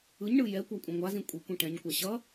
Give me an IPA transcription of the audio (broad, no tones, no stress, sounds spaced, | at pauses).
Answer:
ɯ ɲ ɳ ɯ j ɛ kʷ a kʷʼ ɛ̃ ŋʷ a z ĩ kʷʼ i kʷ ĩ ʈ ɛ̃ ɲ kʷ a ɕ ʌ